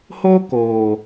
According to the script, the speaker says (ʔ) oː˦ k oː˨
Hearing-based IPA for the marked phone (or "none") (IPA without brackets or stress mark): h